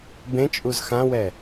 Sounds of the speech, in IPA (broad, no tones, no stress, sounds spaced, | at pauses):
b ẽ t͡ʃʼ u z x ã w ɛ